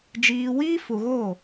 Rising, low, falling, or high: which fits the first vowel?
low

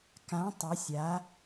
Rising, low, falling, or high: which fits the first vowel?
rising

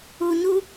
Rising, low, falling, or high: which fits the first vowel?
low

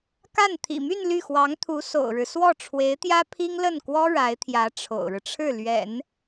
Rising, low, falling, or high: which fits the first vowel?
falling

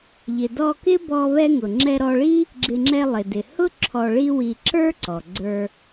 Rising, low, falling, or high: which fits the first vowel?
low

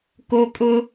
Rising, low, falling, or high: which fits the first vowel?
high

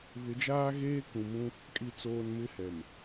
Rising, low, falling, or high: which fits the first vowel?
rising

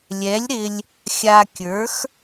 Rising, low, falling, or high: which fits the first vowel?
rising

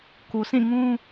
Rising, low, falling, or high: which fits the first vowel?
low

